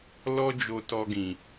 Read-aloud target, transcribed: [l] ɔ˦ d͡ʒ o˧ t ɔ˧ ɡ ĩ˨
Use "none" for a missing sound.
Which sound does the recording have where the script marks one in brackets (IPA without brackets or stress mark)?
l